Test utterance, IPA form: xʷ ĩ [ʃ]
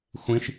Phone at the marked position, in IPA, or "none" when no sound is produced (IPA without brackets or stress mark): ʃ